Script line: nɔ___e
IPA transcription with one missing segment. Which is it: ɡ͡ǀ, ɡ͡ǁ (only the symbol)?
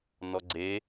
ɡ͡ǀ